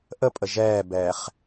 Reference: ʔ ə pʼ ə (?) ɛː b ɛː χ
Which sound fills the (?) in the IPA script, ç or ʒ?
ʒ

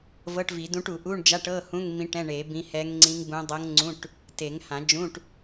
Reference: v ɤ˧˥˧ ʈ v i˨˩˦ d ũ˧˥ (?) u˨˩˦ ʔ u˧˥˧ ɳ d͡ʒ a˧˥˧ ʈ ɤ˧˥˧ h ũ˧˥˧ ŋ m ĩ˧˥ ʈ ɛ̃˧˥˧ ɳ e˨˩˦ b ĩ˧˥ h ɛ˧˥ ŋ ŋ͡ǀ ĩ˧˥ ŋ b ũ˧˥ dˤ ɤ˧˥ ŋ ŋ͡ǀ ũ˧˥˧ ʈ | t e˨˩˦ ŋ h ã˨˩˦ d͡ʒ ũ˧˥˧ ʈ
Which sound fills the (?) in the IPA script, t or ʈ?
ʈ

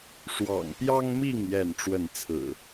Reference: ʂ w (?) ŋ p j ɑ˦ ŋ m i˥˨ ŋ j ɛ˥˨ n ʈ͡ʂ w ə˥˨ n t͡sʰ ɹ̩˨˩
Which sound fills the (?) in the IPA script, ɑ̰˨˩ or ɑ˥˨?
ɑ̰˨˩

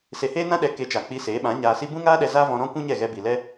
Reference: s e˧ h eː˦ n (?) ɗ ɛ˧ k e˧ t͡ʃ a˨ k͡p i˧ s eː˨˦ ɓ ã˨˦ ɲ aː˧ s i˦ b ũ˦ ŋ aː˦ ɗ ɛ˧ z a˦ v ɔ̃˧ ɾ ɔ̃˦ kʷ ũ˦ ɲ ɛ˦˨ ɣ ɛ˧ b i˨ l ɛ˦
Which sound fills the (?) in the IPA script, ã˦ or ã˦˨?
ã˦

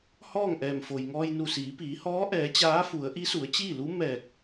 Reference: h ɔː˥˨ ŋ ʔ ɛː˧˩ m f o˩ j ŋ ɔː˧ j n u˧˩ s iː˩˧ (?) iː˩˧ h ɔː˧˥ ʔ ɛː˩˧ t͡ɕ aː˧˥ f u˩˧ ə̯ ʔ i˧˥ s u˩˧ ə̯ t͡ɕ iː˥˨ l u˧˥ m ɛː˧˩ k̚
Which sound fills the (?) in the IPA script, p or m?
p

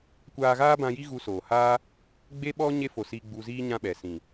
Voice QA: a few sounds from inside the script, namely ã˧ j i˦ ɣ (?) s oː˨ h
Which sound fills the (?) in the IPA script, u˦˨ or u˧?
u˧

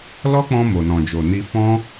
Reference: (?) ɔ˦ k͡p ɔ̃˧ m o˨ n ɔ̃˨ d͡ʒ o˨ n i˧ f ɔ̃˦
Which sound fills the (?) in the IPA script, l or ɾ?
l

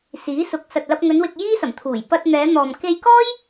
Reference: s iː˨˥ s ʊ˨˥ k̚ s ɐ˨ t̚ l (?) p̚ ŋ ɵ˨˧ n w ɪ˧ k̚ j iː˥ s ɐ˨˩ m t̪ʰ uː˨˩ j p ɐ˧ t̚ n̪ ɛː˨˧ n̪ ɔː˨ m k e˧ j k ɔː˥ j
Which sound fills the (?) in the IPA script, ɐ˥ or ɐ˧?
ɐ˧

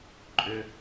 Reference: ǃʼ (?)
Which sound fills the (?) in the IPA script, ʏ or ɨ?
ʏ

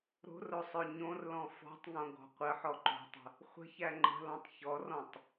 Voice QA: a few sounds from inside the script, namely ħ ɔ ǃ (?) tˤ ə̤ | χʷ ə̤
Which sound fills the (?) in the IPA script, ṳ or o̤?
o̤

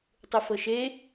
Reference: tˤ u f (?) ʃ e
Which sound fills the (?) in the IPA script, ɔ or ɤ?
ɤ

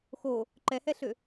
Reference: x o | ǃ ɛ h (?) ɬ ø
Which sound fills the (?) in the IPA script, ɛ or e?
ɛ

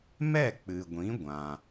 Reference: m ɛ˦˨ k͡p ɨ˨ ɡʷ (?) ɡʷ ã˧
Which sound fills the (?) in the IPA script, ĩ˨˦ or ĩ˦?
ĩ˨˦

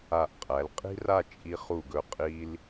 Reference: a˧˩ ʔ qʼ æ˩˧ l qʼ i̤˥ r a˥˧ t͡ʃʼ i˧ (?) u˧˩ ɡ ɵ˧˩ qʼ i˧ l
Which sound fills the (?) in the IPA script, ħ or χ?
χ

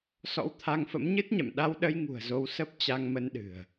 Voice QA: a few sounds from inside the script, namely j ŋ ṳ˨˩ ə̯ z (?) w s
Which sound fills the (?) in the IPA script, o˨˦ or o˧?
o˧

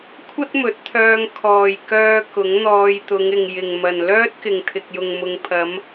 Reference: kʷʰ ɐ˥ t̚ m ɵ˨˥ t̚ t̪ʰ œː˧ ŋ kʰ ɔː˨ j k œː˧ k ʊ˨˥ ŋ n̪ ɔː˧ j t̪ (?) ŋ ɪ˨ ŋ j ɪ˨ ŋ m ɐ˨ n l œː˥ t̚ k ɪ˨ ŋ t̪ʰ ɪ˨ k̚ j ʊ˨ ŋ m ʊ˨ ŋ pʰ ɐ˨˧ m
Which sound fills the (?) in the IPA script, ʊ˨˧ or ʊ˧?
ʊ˨˧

